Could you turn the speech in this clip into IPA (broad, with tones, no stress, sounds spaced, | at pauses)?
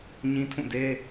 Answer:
ɲ ĩ˦ tʰ ũ˦˨ d e˦